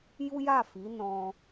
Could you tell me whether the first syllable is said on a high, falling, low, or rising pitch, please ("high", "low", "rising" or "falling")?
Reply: high